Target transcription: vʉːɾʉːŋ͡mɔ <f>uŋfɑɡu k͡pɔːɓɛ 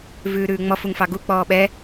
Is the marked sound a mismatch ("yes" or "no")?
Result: no